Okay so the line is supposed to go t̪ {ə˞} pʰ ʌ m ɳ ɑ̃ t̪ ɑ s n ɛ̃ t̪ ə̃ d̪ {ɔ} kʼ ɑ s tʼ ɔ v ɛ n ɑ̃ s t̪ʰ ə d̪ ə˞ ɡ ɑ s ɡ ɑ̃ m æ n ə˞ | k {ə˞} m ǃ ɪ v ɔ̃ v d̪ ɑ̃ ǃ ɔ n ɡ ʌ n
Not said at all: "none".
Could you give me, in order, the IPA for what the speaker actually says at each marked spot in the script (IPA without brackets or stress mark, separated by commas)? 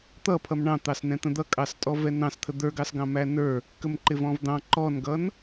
ʌ, ʌ, ə